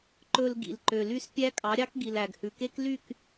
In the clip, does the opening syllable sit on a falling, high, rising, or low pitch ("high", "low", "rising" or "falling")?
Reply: low